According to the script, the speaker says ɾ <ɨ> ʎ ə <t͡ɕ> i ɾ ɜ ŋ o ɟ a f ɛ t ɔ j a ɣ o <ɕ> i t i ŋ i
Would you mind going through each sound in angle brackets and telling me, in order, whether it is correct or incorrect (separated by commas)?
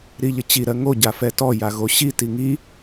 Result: incorrect, correct, correct